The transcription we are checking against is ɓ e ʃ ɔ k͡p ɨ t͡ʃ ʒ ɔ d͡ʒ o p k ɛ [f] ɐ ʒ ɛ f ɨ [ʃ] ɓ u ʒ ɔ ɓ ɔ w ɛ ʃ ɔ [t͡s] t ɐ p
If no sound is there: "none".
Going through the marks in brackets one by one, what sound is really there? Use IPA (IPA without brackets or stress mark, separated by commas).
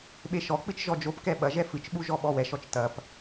ɓ, t͡ʃ, t͡ʃ